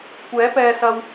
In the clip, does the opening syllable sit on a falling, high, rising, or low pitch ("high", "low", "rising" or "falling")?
rising